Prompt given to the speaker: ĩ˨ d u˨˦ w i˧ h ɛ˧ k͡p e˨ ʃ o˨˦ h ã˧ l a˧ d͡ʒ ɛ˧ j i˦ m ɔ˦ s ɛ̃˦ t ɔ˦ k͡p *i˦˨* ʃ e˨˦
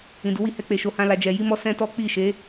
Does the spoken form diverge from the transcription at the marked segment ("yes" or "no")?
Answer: no